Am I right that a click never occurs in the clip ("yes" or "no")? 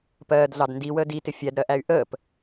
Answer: yes